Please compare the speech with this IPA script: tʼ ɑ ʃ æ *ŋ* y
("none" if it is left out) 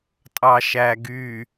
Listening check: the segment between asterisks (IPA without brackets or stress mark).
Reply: ɡ